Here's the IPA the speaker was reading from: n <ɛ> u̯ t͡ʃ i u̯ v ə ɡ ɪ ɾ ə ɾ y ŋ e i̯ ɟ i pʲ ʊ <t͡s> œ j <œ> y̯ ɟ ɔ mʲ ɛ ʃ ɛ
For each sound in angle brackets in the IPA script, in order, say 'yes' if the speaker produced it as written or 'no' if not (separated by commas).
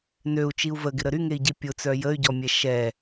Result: no, yes, no